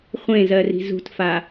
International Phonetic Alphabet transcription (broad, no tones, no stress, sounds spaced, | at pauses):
χʷ ẽ z ɜ r i̤ z ṳ t f a